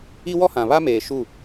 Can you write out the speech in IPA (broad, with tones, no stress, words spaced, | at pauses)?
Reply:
i˦wɔ˦hã˨ βa˦meː˨ ʃu˦˨